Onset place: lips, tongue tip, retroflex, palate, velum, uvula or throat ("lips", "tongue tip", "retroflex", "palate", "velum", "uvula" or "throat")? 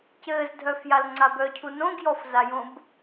palate